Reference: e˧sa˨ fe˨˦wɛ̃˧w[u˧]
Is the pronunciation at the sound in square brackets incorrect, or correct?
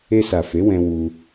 correct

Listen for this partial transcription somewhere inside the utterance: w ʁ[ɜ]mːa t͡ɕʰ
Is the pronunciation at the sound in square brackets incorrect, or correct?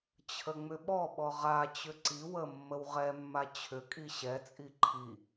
incorrect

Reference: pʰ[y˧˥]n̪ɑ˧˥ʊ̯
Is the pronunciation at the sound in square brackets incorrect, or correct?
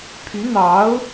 correct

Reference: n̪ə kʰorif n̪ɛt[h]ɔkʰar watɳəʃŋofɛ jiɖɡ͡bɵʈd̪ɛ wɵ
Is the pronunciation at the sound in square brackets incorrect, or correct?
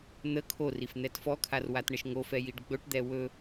incorrect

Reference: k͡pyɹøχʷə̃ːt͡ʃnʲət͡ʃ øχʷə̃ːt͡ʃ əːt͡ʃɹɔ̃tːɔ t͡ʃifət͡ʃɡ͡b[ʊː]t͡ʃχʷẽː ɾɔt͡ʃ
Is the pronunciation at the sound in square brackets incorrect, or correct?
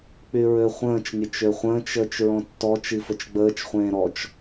incorrect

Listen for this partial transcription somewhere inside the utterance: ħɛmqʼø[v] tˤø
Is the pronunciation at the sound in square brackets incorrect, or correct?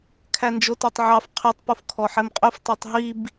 incorrect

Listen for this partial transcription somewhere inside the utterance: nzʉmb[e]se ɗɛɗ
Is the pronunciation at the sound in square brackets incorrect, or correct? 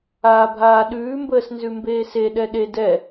incorrect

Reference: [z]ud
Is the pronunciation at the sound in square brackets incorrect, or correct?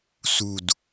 incorrect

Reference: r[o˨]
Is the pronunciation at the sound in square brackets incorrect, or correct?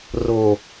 correct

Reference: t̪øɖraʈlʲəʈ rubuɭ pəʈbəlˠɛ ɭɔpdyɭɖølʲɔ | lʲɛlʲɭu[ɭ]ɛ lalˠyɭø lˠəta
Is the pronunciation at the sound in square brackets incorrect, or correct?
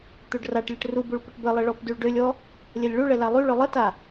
correct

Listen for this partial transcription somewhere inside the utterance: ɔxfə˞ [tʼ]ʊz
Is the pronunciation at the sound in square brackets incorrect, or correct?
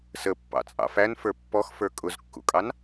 incorrect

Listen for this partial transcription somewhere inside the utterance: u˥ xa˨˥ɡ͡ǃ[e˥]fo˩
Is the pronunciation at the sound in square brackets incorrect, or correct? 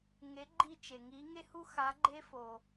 correct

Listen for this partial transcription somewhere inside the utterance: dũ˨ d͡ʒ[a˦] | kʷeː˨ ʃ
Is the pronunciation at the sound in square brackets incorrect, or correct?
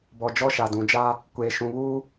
correct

